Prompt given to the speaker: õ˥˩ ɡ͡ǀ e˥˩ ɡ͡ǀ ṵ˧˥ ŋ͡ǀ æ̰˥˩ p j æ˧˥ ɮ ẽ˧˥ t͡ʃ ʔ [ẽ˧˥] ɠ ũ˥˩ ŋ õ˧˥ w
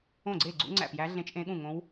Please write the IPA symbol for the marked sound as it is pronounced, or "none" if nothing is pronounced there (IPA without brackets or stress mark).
ẽ˧˥